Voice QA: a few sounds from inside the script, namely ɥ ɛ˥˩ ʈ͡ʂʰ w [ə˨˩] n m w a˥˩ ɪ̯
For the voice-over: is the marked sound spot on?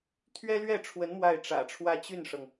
no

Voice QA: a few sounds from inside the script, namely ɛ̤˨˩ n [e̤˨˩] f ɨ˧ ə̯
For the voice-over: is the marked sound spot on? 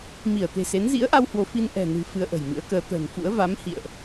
no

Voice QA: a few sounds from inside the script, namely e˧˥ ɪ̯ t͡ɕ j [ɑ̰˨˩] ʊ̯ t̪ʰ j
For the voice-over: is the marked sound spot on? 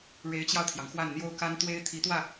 no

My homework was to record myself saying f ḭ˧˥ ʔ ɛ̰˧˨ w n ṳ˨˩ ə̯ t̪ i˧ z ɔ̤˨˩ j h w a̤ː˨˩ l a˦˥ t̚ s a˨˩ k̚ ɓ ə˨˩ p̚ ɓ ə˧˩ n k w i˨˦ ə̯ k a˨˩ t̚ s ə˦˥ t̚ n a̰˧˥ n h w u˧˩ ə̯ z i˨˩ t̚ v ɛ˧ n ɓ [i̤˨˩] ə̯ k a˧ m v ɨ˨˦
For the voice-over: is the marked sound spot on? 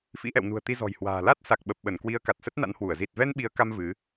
no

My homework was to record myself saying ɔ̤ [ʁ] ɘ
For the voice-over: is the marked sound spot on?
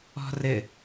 no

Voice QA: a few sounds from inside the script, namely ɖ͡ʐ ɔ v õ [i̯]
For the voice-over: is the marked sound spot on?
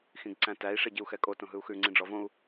no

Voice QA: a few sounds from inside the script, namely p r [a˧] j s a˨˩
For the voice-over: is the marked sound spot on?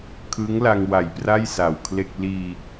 no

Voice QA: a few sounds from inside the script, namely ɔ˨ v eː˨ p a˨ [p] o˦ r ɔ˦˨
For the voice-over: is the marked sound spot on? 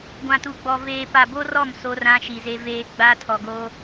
no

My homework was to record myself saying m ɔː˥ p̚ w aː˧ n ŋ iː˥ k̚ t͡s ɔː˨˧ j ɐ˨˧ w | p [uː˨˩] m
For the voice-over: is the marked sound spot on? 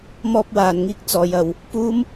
no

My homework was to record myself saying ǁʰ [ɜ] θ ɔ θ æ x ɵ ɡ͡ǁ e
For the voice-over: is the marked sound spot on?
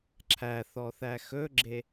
no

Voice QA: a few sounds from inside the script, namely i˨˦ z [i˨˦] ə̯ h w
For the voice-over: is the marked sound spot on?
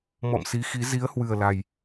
yes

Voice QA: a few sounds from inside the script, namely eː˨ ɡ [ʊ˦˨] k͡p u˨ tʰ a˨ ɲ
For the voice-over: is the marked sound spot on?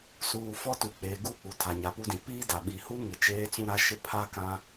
no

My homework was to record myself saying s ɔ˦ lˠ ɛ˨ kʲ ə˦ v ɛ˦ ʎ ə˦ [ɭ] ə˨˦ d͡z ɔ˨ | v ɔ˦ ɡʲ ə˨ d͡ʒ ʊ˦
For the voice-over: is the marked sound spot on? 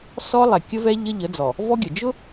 no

